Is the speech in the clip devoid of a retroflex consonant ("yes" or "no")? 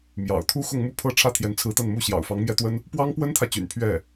no